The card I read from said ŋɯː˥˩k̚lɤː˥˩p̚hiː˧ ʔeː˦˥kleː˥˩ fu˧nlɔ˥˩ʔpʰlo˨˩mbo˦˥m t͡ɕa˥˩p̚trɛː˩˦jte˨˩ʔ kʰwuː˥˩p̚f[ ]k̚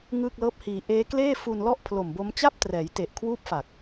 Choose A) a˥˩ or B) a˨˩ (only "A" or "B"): B